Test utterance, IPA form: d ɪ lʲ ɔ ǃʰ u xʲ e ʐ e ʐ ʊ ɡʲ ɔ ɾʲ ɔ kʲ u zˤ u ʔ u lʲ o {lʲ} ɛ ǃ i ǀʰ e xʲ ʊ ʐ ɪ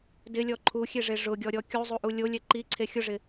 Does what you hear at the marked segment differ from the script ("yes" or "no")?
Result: no